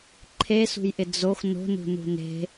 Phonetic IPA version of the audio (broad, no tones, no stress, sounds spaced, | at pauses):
ǃʰ e s ṳ j ʔ ɪ d͡z o x n o̤ n ṳ n ṳ n e̤